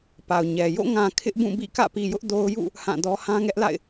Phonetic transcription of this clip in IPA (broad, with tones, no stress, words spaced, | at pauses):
pa˨ʊ̯ɲɛ˨ jo̰˦˨ŋã˨ kʰɪ˦ʔbũ˦˨bḭ˦˨ kä̰˦˨pi˨jʊ˦ʔ do˦ʊ̯ jṵ˦˨ | hã˦˨dɔ˦ hã˦ŋɛ˦ʔla̰˦˨ɪ̯